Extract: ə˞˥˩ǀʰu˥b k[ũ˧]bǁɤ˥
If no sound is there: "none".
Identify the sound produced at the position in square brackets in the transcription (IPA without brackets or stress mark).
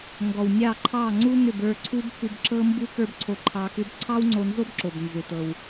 u˧